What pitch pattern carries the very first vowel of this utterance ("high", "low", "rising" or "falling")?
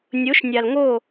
rising